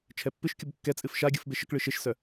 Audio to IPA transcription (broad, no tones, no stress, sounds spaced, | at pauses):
t͡ʃʰ ɛ pː ɨ ʃ kʲ u b kː ɛ t͡sʼ ɨ f ʃ a ɡʲ ɯ f b e ʃ ə k ɭ ɨ ʃ e ʃ s œ